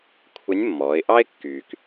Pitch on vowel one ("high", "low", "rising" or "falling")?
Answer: rising